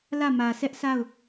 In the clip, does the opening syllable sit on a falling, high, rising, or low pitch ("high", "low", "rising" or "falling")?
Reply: falling